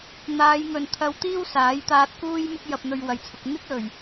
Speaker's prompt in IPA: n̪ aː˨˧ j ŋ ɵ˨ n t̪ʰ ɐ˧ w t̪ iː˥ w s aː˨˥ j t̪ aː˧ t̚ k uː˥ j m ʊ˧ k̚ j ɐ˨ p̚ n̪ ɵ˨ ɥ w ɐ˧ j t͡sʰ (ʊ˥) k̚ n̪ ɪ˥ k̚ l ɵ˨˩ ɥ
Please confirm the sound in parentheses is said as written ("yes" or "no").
no